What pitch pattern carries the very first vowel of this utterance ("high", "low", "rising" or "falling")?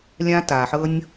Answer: high